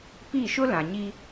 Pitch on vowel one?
falling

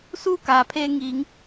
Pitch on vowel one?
falling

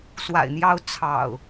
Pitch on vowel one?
low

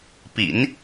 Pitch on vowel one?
low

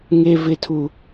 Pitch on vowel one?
high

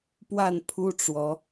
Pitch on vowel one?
falling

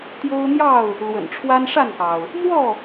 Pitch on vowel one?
high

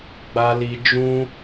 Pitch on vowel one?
high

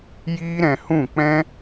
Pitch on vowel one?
high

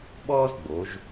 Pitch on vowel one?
high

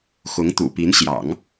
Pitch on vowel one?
rising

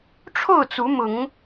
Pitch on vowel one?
falling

